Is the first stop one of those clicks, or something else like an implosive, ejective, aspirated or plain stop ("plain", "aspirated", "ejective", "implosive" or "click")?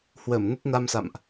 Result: plain